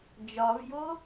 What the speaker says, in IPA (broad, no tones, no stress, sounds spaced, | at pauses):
d͡ʒ ɒ v j o